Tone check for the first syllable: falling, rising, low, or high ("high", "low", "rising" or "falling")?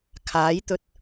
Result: rising